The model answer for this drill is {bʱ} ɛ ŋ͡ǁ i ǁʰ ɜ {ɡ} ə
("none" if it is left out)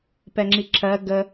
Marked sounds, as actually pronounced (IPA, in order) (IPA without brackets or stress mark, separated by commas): p, ɡ